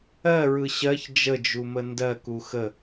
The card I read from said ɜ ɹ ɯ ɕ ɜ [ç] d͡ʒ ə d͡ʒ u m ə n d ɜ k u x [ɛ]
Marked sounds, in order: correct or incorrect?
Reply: correct, incorrect: ə

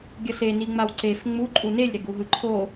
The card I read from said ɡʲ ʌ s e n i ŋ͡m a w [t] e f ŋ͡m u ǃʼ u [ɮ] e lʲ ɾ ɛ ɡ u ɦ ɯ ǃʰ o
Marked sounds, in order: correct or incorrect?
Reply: incorrect: ǀ, incorrect: n

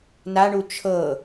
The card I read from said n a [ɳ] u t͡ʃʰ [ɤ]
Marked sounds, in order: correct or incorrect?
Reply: correct, correct

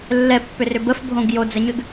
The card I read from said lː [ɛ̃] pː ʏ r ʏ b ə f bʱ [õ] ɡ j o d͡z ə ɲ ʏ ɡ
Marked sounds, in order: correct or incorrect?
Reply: incorrect: ɛ, correct

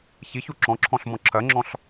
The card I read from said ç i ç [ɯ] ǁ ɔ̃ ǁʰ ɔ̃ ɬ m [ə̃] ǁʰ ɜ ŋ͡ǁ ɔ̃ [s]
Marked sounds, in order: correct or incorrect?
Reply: incorrect: u, incorrect: ɔ̃, incorrect: ɬ

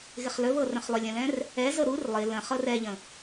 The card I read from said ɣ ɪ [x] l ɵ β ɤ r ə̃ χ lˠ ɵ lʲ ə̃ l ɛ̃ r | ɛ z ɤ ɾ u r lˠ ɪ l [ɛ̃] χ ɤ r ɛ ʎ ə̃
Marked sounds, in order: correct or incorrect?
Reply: incorrect: χ, incorrect: ə̃

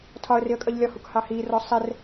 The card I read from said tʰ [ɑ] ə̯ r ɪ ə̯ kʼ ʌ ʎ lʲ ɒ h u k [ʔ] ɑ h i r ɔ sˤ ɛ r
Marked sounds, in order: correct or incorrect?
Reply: incorrect: ɒ, incorrect: h

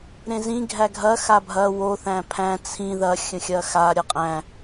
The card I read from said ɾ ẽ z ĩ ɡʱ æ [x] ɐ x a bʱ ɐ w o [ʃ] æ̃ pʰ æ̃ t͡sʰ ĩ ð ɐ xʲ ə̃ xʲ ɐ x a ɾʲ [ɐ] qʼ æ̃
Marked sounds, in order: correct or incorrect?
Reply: incorrect: ɡʱ, incorrect: θ, correct

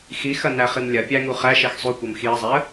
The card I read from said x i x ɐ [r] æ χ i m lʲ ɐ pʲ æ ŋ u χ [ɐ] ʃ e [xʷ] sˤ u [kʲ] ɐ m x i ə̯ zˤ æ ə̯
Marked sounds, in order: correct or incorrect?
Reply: incorrect: n, incorrect: æ, incorrect: x, incorrect: kʷ

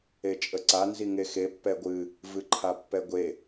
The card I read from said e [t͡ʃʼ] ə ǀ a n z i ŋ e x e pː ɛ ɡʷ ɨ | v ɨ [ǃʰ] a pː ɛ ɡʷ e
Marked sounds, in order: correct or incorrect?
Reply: correct, correct

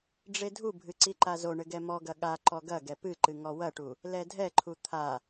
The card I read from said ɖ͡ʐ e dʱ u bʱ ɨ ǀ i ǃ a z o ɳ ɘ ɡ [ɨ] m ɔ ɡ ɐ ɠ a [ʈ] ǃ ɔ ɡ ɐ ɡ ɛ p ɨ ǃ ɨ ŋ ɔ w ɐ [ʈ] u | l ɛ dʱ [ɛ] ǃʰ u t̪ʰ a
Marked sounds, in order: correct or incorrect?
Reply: incorrect: ɛ, incorrect: none, correct, correct

